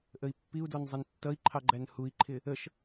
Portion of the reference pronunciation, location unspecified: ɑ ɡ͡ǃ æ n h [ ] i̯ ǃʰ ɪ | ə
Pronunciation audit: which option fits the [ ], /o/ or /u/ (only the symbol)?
u